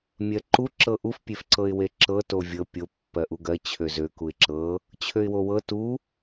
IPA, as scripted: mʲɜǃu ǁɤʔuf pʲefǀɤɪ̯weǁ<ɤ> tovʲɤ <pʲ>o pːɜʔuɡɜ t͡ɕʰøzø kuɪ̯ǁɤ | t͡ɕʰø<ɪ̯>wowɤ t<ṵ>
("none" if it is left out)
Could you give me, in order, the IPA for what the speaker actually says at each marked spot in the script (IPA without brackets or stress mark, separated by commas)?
ɤ, pʲ, ɪ̯, u